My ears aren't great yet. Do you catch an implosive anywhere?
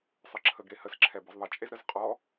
no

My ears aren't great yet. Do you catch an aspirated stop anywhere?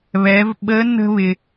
no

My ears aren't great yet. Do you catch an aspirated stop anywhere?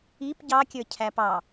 yes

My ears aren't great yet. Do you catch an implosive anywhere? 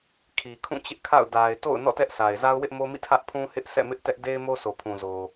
no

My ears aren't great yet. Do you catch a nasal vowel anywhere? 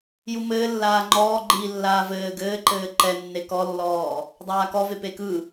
no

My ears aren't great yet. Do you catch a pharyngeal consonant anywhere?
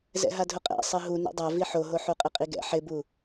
yes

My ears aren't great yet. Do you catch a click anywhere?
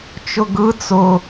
no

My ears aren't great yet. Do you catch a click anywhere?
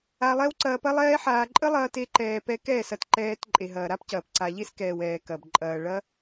yes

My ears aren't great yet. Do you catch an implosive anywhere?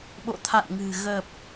yes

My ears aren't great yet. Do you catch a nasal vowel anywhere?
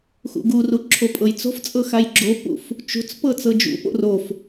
no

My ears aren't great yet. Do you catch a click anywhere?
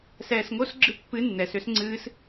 yes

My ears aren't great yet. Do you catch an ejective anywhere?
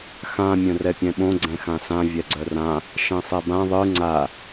no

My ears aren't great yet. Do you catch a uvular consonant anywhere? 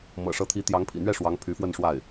no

